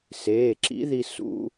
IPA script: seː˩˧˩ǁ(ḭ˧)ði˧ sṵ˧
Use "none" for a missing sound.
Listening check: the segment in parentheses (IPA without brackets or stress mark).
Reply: ḭ˧˥